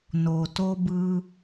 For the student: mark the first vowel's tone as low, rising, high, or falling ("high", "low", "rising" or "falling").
low